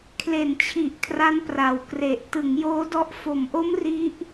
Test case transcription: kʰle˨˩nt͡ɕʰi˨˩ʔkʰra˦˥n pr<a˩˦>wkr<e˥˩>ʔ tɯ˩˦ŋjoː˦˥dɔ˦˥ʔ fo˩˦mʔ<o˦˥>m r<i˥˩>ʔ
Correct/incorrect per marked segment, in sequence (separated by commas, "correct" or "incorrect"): incorrect, incorrect, correct, incorrect